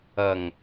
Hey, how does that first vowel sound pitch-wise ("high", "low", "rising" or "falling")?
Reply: low